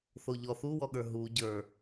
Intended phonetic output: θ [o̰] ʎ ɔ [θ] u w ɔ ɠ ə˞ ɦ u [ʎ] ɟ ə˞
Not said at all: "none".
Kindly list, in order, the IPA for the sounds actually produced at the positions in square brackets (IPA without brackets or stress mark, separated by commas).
o, θ, none